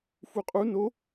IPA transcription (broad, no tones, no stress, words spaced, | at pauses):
fuqʼu no